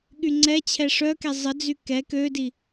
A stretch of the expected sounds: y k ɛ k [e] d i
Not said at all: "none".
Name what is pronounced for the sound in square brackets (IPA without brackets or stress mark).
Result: ø